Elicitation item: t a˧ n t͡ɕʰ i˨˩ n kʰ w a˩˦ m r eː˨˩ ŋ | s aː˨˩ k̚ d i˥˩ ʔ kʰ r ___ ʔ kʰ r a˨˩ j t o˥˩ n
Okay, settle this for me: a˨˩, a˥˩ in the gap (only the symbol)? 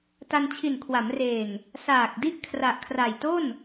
a˨˩